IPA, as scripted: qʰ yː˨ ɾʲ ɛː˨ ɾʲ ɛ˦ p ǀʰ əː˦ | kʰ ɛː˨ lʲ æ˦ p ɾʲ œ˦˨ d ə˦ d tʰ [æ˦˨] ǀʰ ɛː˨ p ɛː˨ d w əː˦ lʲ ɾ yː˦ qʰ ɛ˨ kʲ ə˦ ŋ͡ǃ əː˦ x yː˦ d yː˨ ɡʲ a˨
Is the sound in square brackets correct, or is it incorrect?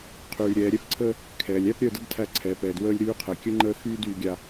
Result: correct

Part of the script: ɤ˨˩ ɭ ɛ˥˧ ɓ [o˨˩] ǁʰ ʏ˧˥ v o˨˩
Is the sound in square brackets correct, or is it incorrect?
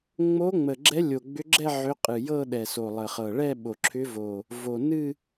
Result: correct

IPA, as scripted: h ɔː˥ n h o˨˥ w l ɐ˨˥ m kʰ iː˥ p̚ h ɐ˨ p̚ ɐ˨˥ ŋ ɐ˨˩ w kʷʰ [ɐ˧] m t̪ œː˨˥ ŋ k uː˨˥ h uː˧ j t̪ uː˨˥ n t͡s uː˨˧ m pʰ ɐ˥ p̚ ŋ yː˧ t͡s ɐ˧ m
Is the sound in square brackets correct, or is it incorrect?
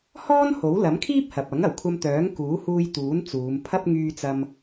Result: correct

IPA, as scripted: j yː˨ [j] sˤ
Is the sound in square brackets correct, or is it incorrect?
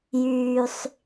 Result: incorrect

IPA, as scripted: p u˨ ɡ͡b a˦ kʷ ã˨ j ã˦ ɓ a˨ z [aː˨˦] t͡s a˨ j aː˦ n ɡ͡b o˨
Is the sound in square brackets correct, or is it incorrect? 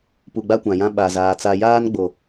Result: incorrect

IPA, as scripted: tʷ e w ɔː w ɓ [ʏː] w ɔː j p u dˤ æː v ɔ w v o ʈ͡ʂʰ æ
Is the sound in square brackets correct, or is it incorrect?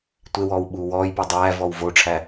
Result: incorrect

